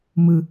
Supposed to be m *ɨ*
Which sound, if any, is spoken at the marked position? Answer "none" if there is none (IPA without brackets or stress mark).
ɨ